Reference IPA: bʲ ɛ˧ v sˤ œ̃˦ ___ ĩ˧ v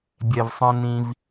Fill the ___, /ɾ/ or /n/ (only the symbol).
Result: n